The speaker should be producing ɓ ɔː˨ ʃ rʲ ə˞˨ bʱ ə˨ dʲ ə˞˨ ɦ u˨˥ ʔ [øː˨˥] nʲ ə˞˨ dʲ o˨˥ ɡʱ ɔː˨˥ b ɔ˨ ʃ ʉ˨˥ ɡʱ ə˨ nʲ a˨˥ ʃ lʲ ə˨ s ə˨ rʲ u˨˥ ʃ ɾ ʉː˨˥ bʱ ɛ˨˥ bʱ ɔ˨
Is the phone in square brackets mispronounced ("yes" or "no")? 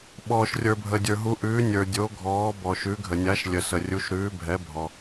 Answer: yes